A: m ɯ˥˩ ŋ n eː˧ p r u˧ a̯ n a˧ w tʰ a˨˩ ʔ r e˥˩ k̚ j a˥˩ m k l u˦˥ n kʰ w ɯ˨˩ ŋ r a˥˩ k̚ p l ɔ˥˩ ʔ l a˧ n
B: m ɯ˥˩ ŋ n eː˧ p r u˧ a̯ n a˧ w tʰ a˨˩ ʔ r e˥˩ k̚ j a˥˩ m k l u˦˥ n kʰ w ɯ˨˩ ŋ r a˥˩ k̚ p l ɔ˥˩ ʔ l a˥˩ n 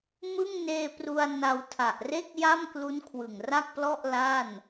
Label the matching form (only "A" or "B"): B